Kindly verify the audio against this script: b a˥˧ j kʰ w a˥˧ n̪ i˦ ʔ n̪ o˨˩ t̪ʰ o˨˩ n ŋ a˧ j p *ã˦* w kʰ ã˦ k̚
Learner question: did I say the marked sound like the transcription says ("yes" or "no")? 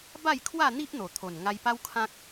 no